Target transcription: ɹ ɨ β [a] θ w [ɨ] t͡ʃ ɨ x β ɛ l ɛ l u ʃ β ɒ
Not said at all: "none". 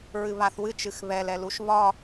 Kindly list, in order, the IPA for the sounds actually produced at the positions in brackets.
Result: a, ɨ

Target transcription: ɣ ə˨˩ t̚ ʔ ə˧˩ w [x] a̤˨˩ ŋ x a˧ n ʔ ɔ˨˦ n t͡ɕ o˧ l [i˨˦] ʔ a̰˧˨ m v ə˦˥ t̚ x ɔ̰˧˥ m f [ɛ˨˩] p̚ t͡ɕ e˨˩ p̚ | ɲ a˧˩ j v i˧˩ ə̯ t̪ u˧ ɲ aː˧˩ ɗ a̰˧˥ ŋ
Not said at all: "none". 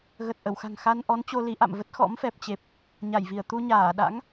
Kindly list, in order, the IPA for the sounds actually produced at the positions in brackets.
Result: x, i˨˦, ɛ˨˩

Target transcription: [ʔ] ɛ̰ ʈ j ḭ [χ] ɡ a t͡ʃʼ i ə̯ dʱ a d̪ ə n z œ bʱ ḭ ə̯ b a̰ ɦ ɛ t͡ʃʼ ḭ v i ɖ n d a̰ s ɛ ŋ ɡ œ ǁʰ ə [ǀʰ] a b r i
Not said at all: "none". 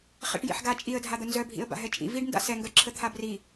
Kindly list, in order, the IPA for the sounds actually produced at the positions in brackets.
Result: χ, ħ, t̪ʰ

